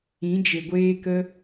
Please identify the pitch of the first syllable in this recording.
rising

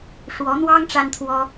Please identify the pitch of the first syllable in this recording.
rising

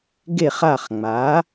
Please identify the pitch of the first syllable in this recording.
falling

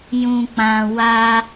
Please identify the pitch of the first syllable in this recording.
low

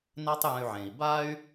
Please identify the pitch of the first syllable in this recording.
high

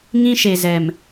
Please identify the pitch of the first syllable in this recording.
high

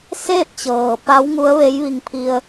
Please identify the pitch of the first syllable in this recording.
falling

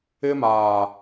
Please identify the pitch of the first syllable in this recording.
high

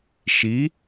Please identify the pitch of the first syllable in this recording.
rising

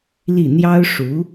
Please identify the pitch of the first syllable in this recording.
falling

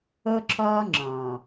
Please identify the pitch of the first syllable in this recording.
high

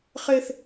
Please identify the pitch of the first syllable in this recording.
high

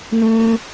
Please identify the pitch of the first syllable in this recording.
low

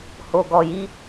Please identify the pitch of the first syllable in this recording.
low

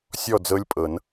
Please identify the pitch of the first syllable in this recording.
falling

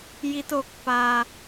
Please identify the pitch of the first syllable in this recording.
low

